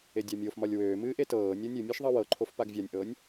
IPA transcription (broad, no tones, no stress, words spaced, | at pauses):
edʲamʲofmɒlʲ wøːmɨː ʔetɤːnʲɤ nʲɨmʲɤʃ ðˤɤwɤǃʰof paɡvʲanʲʔɤːnʲ